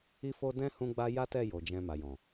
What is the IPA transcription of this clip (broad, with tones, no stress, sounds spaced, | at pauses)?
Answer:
i˦ f o˦ d ɛ̃˦ h ũ˦ ɡ͡b a˦ j a˦ t ɛ˦˨ j o˨ d͡ʒ ɛ̃˧ m a˨ j ɔ̃˨